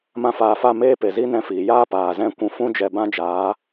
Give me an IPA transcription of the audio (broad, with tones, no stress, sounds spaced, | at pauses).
m ã˦ f aː˧ f a˦˨ m eː˦ p e˨ z i˦ n ɛ̃˧ f iː˨ j aː˦ p aː˨ z ɛ̃˦˨ kʷ ũ˧ f ũ˦ d͡ʒ ɛ˧ b ã˦ d͡ʒ aː˨˦